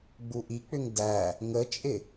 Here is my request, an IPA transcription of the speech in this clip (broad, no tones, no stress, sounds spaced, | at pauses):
ɡ͡b u ʔ i k͡p ʏ ŋ d æ | ŋ ə t͡ʃʼ ɪ